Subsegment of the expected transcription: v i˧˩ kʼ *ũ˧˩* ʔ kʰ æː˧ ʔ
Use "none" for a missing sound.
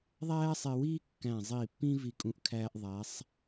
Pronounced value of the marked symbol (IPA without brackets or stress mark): ũ˧˩